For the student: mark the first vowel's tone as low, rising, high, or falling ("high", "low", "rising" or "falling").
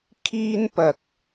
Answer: high